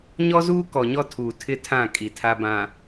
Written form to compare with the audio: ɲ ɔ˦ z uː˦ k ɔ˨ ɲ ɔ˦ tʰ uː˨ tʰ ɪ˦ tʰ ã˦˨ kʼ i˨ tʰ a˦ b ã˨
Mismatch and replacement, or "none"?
none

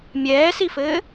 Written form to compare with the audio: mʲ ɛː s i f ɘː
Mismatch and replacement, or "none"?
none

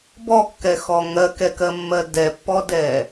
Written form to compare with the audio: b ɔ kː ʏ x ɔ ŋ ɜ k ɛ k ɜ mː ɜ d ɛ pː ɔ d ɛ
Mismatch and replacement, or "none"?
ʏ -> ɛ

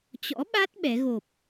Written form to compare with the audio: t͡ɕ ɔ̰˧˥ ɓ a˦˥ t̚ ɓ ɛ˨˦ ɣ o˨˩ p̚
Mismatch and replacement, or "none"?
none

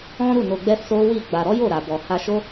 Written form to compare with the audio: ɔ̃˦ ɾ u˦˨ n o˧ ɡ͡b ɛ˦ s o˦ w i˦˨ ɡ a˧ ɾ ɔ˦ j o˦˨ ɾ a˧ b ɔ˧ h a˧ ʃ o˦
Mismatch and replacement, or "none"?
ɡ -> ɡ͡b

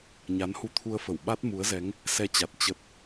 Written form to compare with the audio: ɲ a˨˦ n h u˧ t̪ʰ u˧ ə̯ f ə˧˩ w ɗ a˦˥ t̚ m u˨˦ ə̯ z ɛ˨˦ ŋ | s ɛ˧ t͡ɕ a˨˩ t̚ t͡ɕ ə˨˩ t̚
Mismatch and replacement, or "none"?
ɗ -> ɓ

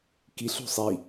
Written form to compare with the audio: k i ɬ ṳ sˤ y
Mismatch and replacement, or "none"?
y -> i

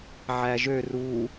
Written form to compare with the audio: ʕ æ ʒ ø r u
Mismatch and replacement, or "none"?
none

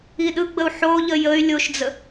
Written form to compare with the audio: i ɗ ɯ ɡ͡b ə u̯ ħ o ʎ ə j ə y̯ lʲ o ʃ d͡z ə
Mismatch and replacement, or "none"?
none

